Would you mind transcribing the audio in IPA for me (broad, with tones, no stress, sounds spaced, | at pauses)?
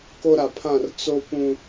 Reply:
k o˦ ɾ a˨ pʰ ã˦˨ r t͡s o˦ p ũ˦